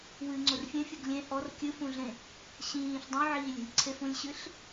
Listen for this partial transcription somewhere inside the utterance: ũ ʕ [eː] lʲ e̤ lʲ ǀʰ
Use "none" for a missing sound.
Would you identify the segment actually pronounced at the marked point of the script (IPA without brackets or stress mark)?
iː